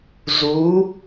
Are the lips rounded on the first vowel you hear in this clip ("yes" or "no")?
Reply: yes